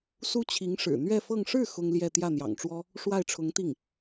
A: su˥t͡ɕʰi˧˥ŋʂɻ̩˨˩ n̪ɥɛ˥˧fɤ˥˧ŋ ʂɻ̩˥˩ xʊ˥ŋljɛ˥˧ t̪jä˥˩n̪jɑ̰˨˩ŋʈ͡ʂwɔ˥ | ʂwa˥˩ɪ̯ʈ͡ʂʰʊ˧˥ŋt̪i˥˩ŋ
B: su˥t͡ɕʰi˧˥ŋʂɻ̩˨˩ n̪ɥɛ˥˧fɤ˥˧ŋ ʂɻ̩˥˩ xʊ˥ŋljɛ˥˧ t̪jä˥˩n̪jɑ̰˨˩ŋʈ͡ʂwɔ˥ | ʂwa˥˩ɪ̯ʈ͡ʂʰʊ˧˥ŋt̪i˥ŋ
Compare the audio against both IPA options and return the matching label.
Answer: A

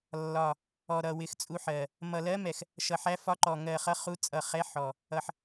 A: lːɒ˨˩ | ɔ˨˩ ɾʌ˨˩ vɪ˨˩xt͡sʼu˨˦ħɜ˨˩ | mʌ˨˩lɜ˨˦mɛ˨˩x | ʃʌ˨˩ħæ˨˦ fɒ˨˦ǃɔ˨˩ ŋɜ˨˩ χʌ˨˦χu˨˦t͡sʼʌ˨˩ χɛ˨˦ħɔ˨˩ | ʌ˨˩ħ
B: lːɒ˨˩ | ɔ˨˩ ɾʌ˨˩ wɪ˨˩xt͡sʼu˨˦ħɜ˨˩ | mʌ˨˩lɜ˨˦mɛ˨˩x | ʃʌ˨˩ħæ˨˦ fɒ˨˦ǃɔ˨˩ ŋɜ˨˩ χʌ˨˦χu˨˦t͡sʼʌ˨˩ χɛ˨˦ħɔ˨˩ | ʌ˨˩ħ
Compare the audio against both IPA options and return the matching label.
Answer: B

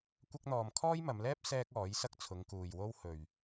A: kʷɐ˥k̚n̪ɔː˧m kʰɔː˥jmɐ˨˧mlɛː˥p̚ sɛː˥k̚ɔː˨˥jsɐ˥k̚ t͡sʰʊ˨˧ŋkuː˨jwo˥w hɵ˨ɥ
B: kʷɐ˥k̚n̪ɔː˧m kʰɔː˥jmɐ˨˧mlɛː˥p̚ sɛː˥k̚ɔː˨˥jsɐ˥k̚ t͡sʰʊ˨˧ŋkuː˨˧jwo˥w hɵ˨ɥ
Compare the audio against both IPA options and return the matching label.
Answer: A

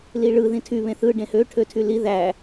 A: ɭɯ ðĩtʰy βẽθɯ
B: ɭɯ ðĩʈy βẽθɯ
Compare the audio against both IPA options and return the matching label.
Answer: A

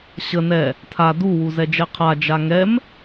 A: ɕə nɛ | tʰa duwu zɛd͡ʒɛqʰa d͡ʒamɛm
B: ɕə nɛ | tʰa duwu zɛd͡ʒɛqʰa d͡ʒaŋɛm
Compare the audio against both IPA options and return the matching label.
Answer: B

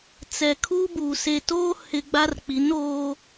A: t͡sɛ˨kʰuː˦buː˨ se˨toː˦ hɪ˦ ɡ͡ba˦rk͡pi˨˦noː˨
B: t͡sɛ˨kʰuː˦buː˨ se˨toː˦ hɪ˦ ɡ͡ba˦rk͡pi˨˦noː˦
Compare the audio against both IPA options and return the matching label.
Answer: B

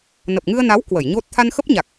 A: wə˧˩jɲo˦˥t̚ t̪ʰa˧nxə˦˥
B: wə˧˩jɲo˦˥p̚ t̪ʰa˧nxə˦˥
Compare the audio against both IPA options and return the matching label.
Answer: A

